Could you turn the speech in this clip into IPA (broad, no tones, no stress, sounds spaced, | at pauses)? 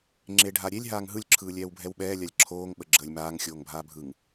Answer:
ŋ͡ǁ e ɖʱ a ɾʲ e lʲ ɦ aː ŋ ɦ ɯ lʲ ǁʰ ɯː lʲ ɛː w bʱ ɛ w ɓ ɛː lʲ a lʲ ǁʰ oː ŋ ɓ ə ɡ͡ǁ əː lʲ m aː ŋ xʲ oː ŋ bʱ aː bʱ ɯ ŋ